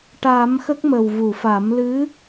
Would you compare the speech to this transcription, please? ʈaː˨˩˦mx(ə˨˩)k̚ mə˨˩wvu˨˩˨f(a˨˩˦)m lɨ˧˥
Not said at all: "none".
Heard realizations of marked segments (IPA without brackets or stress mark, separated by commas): ə˦˥, a˨˩˦